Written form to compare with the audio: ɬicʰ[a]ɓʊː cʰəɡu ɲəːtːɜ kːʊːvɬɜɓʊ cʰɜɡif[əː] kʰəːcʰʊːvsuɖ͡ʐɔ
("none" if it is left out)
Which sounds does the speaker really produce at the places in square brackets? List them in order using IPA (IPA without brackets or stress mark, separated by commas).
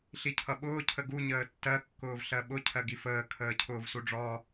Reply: ʌ, əː